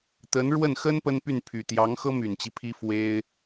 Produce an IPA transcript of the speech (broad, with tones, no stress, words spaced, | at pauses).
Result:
t̪ə˧˥nɻwə˥˩n xə˥n pə˥npy˥˩npʰy˨˩ t̪jɑ˧˥ŋxɤ˥my˨˩nt͡ɕi˦ pʰi˥fwe˥ɪ̯